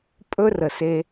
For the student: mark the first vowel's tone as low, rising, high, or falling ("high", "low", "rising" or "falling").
high